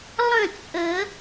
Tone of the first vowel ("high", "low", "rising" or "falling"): falling